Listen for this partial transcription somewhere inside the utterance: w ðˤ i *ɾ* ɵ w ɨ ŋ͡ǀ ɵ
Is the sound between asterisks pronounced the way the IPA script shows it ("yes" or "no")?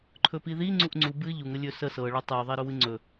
yes